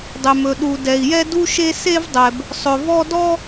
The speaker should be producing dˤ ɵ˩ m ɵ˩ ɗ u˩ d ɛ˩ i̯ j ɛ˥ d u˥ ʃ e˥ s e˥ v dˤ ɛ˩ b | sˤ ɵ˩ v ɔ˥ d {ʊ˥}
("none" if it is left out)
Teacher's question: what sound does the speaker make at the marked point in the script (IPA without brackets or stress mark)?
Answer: ɔ˥